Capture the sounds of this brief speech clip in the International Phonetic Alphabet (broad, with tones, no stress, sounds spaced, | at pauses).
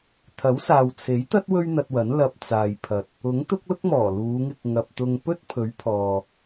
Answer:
t̪ʰ ɐ˨˥ w s aː˨ w t͡sʰ e˨˥ j t̪ ɐ˥ t̚ w ɵ˥ ɥ n̪ ɐ˧ t̚ w ɐ˨˥ n l ɐ˧ p̚ t͡s aː˨ j pʰ ɐ˨ t̚ | ʊ˨˥ ŋ t̪ ʊ˥ k̚ l ʊ˥ k̚ m ɔː˨˩ l uː˨˧ ŋ ɪ˧ k̚ ŋ ɐ˨ p̚ t̪ ʊ˧ ŋ p ɵ˥ t̚ pʰ ɵ˨˥ ɥ pʰ ɔː˨